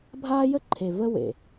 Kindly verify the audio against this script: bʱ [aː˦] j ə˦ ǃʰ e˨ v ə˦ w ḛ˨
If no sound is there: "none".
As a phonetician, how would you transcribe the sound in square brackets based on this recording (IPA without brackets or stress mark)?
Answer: aː˦